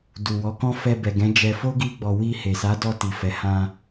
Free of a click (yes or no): yes